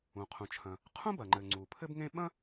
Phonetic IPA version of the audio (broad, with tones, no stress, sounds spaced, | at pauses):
ũ˩ qʰ ũ˩ t͡ʃʰ ɐ̃˩ | qʰ ũ˥ b ɐ˩ ŋ͡ǃ ɘ˩ ŋ͡ǀ u˩ pʰ ɘ˥ b ŋ ẽ˥ ɓ ɐ̃˥